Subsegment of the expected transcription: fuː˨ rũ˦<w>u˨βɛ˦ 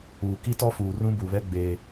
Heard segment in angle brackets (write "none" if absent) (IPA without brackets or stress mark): b